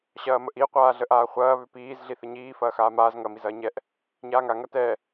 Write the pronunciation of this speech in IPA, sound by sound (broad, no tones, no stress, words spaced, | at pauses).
ɕɐːməʔi qʷaːɮəʔaːχʷɐː βʏpiːz ɮiθəɲiː fɐːxaːmaːz ŋɐ mizɐːɲɛʔ | ɲaːŋa ŋɐtɛ